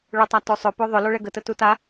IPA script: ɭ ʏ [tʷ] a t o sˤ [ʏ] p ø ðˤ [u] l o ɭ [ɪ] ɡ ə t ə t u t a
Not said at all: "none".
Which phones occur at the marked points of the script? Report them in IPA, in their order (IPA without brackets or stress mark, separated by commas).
tˤ, ʏ, ʏ, ɛ